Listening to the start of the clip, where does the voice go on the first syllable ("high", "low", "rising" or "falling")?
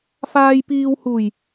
low